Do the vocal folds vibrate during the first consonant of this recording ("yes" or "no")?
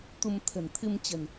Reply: no